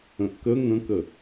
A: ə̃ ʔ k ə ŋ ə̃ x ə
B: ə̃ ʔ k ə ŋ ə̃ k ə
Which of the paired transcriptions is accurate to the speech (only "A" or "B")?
B